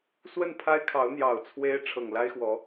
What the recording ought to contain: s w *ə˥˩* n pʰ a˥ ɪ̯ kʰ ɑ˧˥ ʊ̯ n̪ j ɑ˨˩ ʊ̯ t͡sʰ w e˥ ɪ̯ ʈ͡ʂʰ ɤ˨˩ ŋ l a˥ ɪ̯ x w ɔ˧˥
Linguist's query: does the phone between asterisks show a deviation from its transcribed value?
no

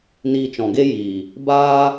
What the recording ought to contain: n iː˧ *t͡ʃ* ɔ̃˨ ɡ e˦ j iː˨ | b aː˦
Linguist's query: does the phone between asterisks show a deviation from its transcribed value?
no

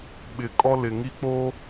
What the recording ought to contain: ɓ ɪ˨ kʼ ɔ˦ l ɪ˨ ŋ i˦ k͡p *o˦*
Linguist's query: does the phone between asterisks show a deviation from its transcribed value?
no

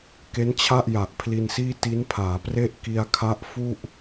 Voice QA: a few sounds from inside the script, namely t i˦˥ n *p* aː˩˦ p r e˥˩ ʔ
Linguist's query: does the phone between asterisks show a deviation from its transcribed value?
yes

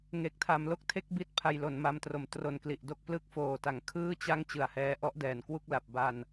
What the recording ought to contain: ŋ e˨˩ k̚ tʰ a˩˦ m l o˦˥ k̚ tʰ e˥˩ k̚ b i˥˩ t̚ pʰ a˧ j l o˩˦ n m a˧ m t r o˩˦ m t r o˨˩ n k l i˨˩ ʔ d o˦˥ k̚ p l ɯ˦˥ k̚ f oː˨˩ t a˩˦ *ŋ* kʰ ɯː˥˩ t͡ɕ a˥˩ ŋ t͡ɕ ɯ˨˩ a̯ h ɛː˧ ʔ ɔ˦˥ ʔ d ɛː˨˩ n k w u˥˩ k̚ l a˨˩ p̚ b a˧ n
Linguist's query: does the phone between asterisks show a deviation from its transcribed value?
no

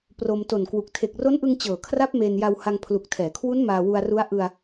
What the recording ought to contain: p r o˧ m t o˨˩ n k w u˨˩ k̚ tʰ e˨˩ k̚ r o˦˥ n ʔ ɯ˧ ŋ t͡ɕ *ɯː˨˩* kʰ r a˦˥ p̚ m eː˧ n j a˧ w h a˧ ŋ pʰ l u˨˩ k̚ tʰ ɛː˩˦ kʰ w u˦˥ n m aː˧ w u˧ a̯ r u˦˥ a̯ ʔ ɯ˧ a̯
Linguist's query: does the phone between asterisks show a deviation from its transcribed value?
yes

